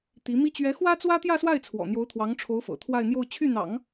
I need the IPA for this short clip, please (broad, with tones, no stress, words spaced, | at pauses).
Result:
t̪i˧˥mi˥ t͡ɕɥɛ˧˥xwä˥t͡swä˥ t̪jä˥˧swa˥˩ɪ̯t͡sʰwɔ̰˨˩ n̪jo˧˥ʊ̯t̪ʰwɑ˧˥ŋʈ͡ʂʰo˧˥ʊ̯ fɤ̰˨˩ t̪ʰwa˥˧ɪ̯n̪jo˥˧ʊ̯ t͡ɕʰy˥˩n̪ɑ̰˨˩˦ŋ